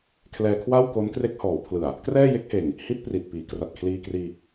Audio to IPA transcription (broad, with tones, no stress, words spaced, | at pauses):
kʰlɛː˧kʰwa˥˩wko˦˥n kre˦˥k̚hɔː˩˦wpʰlɯ˨˩a̯ | krɛː˥˩je˦˥k̚heː˨˩ŋ | hi˦˥t̚ pri˨˩t̚piː˩˦ kra˨˩t̚kʰliː˧kriː˧